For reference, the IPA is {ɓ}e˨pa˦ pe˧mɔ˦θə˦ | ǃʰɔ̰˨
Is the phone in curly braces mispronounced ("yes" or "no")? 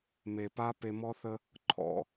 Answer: yes